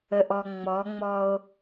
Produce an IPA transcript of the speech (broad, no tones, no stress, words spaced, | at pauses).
əʔɔŋ͡mɔŋ͡mɔo̯